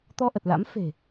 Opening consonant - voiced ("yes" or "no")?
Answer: no